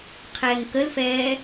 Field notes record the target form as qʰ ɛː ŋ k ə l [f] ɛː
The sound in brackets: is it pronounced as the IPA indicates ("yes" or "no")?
yes